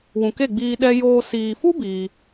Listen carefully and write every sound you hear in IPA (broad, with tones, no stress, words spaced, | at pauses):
wũ˨ke˦˨ɡ͡biː˧ ɗɛ˧joː˧ siː˨fu˦ biː˧